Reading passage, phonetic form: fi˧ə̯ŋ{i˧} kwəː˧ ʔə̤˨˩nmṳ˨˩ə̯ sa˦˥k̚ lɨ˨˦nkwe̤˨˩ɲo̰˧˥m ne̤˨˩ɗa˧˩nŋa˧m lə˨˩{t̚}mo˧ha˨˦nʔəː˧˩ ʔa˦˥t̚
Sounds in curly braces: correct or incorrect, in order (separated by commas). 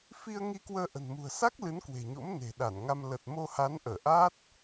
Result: correct, correct